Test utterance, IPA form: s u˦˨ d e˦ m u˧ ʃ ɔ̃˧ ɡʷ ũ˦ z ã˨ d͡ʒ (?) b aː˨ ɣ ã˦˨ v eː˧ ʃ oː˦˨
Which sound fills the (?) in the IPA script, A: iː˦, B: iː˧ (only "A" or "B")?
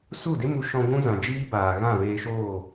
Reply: A